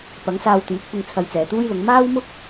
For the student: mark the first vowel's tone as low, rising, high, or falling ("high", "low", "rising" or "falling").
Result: rising